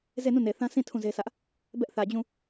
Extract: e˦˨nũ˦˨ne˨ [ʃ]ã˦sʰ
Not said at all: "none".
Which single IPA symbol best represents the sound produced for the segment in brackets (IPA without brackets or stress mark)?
θ